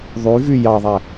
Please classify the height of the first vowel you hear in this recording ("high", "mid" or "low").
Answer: high